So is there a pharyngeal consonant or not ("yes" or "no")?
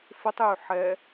yes